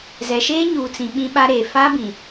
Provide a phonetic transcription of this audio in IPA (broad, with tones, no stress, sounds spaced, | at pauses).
z ɛ˨ ʃ eː˦ ɲ uː˨ t͡s ĩ˨ ɓ ĩ˦ ɓ a˦ ɾ eː˨ f a˦ b ĩ˨